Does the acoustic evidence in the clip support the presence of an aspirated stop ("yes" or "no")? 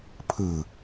yes